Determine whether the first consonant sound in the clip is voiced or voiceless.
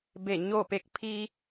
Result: voiced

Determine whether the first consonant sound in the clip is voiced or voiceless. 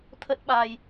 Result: voiceless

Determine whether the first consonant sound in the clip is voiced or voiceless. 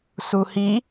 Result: voiceless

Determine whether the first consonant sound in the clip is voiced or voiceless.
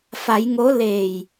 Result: voiceless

